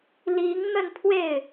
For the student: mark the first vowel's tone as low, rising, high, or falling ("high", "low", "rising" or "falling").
rising